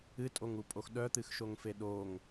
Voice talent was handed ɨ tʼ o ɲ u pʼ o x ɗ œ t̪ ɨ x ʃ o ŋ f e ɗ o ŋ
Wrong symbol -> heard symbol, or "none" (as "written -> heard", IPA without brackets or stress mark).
ɲ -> ŋ